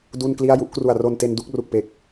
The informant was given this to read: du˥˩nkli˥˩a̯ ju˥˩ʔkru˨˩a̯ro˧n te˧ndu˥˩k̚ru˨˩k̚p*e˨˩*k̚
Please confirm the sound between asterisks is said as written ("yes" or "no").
yes